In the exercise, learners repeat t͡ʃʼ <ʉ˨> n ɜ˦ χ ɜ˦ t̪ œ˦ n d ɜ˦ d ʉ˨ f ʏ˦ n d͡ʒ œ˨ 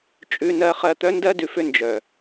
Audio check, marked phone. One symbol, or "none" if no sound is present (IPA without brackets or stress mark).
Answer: ʉ˦